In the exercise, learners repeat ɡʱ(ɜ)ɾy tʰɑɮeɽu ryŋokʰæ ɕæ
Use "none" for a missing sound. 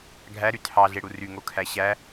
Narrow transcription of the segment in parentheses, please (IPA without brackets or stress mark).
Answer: æ